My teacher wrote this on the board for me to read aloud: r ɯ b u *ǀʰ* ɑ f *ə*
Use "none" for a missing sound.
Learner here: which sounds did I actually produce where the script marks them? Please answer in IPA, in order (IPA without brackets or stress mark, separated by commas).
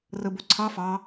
ǀʰ, ɑ